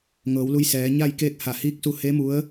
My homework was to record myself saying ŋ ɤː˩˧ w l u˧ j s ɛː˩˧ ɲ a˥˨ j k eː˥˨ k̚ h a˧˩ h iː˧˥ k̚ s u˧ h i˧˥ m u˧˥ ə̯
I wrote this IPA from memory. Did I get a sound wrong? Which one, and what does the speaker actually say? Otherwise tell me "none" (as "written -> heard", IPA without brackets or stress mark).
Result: i˧˥ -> e˧˥